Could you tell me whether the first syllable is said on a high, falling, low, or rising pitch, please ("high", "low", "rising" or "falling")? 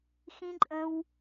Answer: high